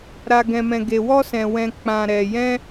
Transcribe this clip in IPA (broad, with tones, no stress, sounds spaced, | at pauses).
ɾ a˧ ɡ ɛ̃˧ m ɛ̃˧ ɡ e˧ w ɔ˦ s ɛ̃˧ w ɛ̃˦ k͡p ã˧ ɾ ɛ˧ j ɛ̃˦